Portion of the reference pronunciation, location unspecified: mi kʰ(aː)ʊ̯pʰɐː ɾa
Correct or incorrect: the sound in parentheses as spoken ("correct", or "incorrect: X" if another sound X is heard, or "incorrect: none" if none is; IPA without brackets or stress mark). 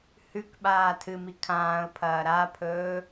incorrect: ãː